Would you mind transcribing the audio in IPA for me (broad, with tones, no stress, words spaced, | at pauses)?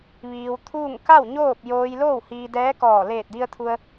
ʋiː˧w t̪ʰuː˥˨ŋ ka˥˨w ɲoː˥˨p̚joː˧j loː˥˨whiː˧dɛː˧˥kɔː˧˩ leː˧˩t̚di˧ə̯t̪ʰu˧ə̯